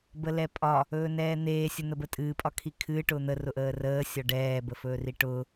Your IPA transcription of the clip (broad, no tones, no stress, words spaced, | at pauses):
bəlɛpʼɒ | ɵːnɛːn̪eː sʲʊn̪əbətʼɨː pʼɒkʰikʰɨː ʈʊːn̪ə rʊʔəːrəː sʲɒɖɛː bəfɵːriʈʊː